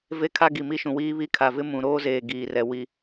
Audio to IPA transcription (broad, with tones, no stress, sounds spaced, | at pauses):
v e˦ kʰ a˦ ɡ i˨ m i˦ ʃ ũ˨ w iː˦ β i˦˨ kʰ a˨ v ɪ˦ m ũ˨ ɾ oː˦ z eː˨ ɡ iː˨ r ɛ˨ w i˨